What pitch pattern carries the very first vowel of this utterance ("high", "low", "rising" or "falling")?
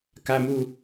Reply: high